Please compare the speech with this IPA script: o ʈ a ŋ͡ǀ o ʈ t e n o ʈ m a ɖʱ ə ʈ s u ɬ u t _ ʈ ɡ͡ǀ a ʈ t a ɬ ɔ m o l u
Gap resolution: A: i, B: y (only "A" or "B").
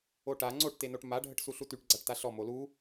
B